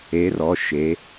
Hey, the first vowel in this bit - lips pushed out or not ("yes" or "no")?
no